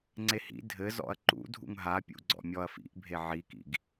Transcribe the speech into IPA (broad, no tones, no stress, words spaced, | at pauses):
ŋ͡ǀehḭ dʱɘ zɔ̰ɐ̯ǃṵ dʱṵŋɦa pʲṵɡ͡ǀɔ̰mʲɔɐ̯ fḭʔbʱe ʕikḭɡ